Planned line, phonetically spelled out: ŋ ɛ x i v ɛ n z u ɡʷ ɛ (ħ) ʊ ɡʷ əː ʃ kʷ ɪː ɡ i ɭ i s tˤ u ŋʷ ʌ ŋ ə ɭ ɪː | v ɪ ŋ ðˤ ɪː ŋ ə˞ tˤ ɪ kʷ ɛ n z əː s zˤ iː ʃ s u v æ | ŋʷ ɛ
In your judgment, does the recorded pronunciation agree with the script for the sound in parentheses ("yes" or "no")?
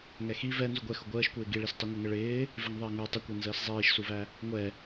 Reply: no